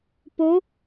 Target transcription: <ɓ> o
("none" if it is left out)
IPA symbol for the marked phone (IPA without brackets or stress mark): p